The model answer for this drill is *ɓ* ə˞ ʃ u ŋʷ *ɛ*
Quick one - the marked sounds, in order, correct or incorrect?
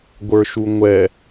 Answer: incorrect: ɡʷ, correct

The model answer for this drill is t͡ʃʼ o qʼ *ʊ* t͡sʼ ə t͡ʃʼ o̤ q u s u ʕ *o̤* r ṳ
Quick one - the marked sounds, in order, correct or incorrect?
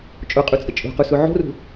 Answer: incorrect: u, correct

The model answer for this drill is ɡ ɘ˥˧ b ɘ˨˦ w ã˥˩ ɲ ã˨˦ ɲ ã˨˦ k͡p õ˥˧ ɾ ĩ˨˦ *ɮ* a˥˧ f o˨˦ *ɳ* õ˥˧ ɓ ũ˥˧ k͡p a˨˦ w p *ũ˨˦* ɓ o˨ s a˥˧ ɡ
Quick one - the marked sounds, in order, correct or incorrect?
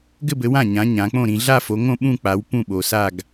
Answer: correct, incorrect: ŋ, incorrect: ũ˥˩

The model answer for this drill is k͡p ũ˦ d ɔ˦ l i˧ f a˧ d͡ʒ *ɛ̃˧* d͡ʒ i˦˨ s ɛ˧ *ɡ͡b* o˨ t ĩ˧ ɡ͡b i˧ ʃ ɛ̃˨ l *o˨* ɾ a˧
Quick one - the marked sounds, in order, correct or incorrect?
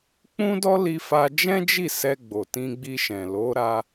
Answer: incorrect: ɛ̃˦, correct, incorrect: o˨˦

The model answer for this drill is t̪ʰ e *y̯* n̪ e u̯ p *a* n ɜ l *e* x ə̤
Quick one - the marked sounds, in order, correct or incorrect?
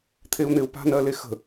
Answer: incorrect: u̯, incorrect: a̤, correct

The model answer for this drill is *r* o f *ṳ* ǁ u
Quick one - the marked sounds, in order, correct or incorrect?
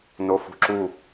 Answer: incorrect: n, correct

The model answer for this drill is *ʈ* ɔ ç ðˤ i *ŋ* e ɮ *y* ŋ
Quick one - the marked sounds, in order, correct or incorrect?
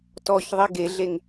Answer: incorrect: t, incorrect: ɡ, incorrect: e

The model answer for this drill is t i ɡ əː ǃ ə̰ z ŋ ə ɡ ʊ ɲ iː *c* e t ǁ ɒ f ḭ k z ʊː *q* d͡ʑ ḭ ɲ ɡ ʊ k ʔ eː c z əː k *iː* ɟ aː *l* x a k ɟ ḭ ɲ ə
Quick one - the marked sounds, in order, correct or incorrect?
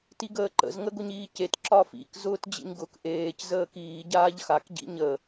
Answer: correct, incorrect: t, correct, incorrect: ʎ

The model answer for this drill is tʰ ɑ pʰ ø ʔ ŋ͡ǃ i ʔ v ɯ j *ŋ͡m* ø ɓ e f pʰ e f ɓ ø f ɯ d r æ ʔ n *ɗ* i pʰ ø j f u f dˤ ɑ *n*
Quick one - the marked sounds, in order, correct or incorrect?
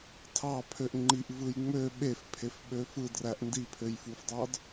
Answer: correct, incorrect: d, incorrect: d

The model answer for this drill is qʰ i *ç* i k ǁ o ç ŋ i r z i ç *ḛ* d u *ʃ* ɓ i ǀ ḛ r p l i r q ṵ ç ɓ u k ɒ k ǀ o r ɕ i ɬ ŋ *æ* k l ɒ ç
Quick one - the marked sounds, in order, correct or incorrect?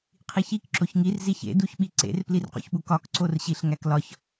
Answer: correct, correct, incorrect: ç, correct

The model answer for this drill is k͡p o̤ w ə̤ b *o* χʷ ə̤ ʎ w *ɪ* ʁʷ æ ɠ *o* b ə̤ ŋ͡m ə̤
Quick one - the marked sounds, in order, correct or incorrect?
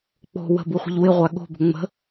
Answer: incorrect: u, correct, incorrect: o̤

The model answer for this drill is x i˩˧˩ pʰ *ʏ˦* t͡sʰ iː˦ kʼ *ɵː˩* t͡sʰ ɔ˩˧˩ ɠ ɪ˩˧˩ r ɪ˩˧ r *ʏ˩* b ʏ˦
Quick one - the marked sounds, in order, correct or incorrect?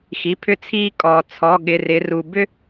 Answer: correct, incorrect: ɔː˩, incorrect: u˩

